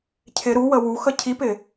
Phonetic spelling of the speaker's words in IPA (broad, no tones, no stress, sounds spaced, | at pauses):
cʰ ɪ ɾ u w ə w u x ə cʰ i p ɪ